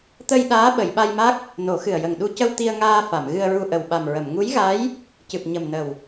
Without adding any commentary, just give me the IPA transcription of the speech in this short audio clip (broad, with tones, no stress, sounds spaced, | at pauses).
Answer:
t̪ ə˧ j ɗ aː˧˥ ɓ ə˨˩˨ j ɓ a˧ j m a˦˥ k̚ | n o˨˩˦ x ɨ˨˩ ə̯ j ə˨˩ ŋ ɗ u˧ c ə˧ w t̪ i˧ ə̯ ŋ aː˧ f a˨˩˨ m ɣ ɨ˧ ə̯ ɹ u˧ ʔ ə˨˩ w ɓ a˨˩ m ɹ ə˨˩˨ m ŋ u˧˥ j ɣ a˧˥ j | c ɨ˨˩ p̚ ɲ ə˨˩ m n ə˨˩ w